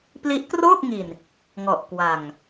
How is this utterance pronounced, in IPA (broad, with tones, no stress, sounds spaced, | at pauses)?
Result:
p l i˦˥ ʔ k r oː˥˩ k̚ ŋ i˨˩ n | ŋ ɔ˨˩ ʔ k w a˨˩ ŋ